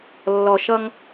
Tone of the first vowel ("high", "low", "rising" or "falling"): low